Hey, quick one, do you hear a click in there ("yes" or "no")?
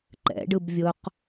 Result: yes